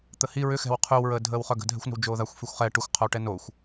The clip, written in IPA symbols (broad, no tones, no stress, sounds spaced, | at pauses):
t̪ ə h i ɹ ʏ x ɛ̤ w qʰ y w ɹ əː dʱ əː w χ œ ɡ ə̤ dʱ ɛ̤ xʷ n ə̤ w d͡ʒ oː ð a xʷ f y xʷ χ ɛ ʈ ʊ xʷ qʰ o w ʈ ɛ n o xʷ